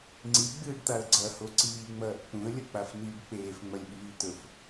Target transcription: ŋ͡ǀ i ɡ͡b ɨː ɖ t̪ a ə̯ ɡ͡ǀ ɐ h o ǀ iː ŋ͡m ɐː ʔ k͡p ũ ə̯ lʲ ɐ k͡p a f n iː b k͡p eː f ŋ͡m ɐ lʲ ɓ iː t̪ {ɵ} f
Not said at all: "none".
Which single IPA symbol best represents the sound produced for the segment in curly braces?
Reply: ɵ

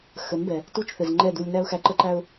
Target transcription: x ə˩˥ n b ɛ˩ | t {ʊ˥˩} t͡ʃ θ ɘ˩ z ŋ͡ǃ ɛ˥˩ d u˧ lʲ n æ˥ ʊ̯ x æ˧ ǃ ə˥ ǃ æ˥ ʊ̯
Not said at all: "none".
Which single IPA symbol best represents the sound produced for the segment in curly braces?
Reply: u˥˩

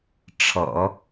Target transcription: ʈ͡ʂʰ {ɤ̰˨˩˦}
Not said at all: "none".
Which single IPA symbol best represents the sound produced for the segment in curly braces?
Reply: ɤ̰˨˩˦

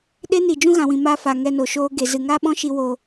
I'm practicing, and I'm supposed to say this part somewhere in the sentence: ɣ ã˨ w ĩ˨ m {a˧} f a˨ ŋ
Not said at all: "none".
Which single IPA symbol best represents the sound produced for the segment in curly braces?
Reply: a˧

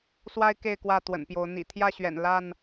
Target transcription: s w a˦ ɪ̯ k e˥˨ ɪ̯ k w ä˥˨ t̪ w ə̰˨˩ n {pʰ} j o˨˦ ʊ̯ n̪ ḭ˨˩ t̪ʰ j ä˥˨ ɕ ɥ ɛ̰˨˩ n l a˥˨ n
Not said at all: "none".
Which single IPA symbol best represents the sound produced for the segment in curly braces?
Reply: p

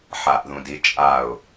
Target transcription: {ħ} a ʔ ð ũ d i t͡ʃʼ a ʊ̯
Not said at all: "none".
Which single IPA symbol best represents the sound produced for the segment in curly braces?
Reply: ħ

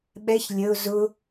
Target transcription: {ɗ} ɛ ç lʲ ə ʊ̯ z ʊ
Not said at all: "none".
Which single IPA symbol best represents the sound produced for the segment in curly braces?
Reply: ɓ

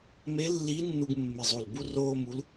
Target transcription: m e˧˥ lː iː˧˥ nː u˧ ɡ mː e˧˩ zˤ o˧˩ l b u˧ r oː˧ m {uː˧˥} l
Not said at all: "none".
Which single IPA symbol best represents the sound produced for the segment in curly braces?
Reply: u˧˥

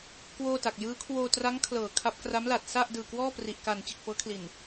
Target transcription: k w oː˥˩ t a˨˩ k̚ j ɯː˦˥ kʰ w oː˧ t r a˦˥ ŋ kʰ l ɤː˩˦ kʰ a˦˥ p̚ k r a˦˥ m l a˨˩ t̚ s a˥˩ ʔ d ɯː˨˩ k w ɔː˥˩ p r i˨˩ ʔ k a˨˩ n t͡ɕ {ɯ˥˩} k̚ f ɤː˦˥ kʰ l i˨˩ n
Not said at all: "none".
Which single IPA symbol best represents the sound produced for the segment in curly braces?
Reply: ɯ˨˩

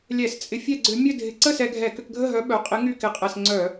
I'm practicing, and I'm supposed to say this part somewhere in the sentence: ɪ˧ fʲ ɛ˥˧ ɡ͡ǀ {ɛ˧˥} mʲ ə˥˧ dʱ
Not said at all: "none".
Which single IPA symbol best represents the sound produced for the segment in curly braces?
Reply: ʏ˧˥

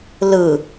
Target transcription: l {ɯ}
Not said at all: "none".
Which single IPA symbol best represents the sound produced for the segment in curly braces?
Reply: ɯ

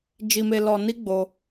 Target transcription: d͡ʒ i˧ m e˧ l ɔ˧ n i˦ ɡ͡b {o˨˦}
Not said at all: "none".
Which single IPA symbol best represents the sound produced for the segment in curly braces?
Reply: o˧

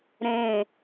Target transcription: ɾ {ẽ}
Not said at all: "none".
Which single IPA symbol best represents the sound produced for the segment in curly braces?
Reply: ẽ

